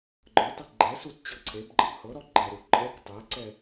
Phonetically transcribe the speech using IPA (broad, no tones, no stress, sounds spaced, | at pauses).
ɡ͡ǃ ə˞ tˤ e ɡ͡ǃ ɛ s u t t͡ɕ ɤ ǀʰ e b ɡ͡ǃ ə b h ɤ ɾ ɔ ɡ͡ǃ ɛ ɾ u ǃʼ ɛ k tˤ ɛ ǀ ɛ